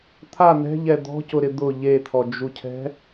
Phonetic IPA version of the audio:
t̪ʰ a n̪ ɛ̤ ʎ ɛ d̪ ɔ̤ c ʊ ɾ ɪ d̪ ʊ ʎ e t̪ʰ ɔ d͡ʒ u cʰ ɛ̤

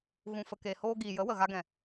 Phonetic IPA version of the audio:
ɣ ũ˨ f ə˨ k e˨ h oː˧ ɡ iː˨ j ə˨˦ w ə˨ ɣ a˧ ɡ ɛ̃˨

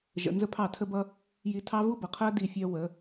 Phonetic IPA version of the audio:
ʒ ə̰˨ n z ə˦ pʰ ɑ˦˨ tʰ ə˦ b ʌ˦ | j i˧ tʰ ɑ˦ v u˦ b ʌ˨ qʰ ɜ˦ d i˦˨ fʲ ɜ˦ w ə˨˦

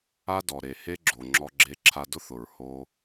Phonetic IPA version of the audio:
a˦ d ɔ˨ ɾ e˨ h e˦ ɡ͡ǁ o˨ ŋ͡ǁ ɔ˧ ɡ͡ǁ e˧ ǁʰ a˧ d ʊ˦ θ ʊ˨ ɹ h o˧

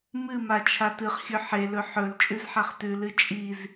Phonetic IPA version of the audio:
m ɨ m a t͡ʃʰ a t ɨ χ xʲ ɵ ħ e l ɵ ħ ɵ l t͡ʃʼ ʉ z ħ a χ t ʉ l ɨ t͡ʃʼ i z

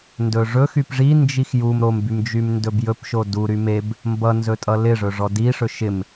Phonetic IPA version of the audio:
n d ɵ ʐ ɵ x y p ʐ i n d͡ʒ i x j u m ɾ o m b y m d͡ʒ y m n d ɵ b j ɵ p ʃ o d u ɾ y m e b | m b ʌ n z ɵ tʼ ʌ l ɪ ʐ ɵ ʐ ɔ d i ʂ ɵ ʃ ɪ m

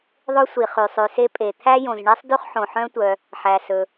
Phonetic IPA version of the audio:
ðˤ ɵ˥ sʷ i˩ χ y˩ sˤ ʉ˩ s e˥ pʼ e˩ t̪ʰ æ˥ j õ˩ z ɳ i˥ sˤ d y˥ χ ħ õ˩ ħ œ̃˥ tʷ œ˩ | ħ æ˩ s ɵ˩

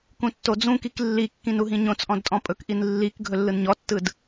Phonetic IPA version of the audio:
k ũ tː o d͡z ũ k i k lː i kː ĩ n u ɦ ĩ ɲ õ t͡s ʔ ɔ̃ d tʼ ɔ̃ pʼ ɵ k ʔ i n lː i k ɡʱ ɵ lː ɯ n ɲ ɔ tː ɯ d

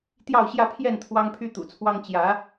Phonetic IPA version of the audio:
t̪ j ɑ˥˧ ʊ̯ ɕ j ä˥˧ pʰ j ɛ˥˩ n t̪ʰ w ɑ˥ ŋ pʰ y˥ t̪ ṵ˨˩ t͡sʰ w ɑ˥ ŋ t͡ɕ j ä˧˥

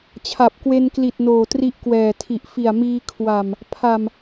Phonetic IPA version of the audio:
t͡ɕʰ a˨˩ p̚ k w e˧ n k l i˨˩ t̚ n oː˨˩ t r i˦˥ ʔ k w ɛː˨˩ tʰ i˨˩ ʔ f i˨˩ a̯ m iː˧ kʰ w a˨˩ m | pʰ a˨˩ m

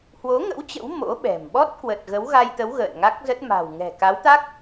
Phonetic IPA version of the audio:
h w o˨˦ ŋ ə̰˧˥ w t͡ɕ ə̰˧˥ w m o̰˧˥ ɓ ɛ̤˨˩ m ɓ ɔ˦˥ t̚ k w ə˨˩ t̚ ɣ ə˨˦ w ɣ a˧ j t̪ ə˨˦ w ɣ ə̰ː˧˨ n ŋ a˦˥ k̚ z ə˦˥ t̚ m a̤˨˩ w ŋ ɛ̤˨˩ k a˨˦ w t̪ a˦˥ k̚

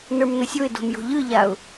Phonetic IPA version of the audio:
n ə˞ m n ə sʲ o ɪ̯ d o̤ m j o̤ ʎ ɯ ʎ a ʊ̯

